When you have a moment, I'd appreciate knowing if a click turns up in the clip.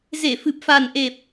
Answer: no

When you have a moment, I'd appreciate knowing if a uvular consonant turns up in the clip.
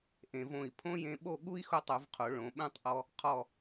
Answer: yes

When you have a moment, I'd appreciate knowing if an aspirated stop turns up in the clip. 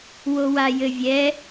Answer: no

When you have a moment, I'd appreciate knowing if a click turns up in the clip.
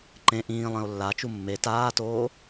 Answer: yes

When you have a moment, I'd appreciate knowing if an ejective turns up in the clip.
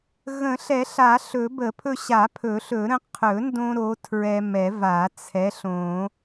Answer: no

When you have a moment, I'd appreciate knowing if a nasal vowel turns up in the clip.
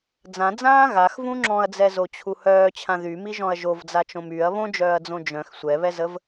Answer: yes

